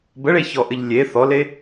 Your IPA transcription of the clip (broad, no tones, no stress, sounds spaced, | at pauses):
b ə ɭ e ç ɔ ʔ ɘ ʎ lʲ e θ ɔ l e